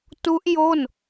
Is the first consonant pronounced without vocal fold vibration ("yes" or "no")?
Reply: yes